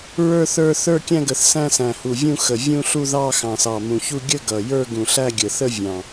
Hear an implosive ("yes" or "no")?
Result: no